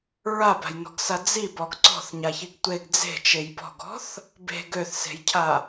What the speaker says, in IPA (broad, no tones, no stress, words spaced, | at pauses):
ɹaba̤jnɔ̤ɡsa d͡zibɔɡ ǀɔ̤θɲaçiɡ tʷeɡ d͡ze̤t͡ʃej bɔ̤ɡɔ̤θ | be̤ɡ øθse̤jcʰa